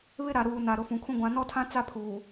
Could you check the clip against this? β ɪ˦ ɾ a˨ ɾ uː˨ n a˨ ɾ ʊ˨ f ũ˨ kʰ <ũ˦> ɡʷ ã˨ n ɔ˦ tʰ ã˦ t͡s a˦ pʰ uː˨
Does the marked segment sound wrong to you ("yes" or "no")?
no